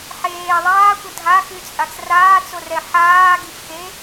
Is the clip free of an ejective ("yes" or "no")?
no